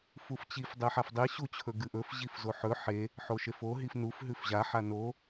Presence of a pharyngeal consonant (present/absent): present